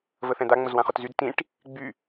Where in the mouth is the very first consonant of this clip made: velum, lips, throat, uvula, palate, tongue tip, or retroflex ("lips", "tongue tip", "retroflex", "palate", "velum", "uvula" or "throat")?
lips